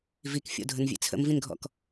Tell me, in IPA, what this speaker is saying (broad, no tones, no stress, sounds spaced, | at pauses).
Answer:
v i k fʲ o̰ dʱ ə n vʲ ḛ t͡sʰ ə̰ m v ĩ n ɡʱ ɔ̰ k